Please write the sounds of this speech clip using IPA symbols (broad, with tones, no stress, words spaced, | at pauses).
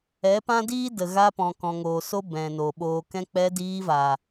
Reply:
ɛ˨˦pã˦diː˦ də˨ɣa˧pɔ̃˨ kɔ̃˨ŋoː˨ so˦ bɛ̃˨no˨ ɓoː˨kɛ̃˧k͡pɛ˧ diː˧vaː˨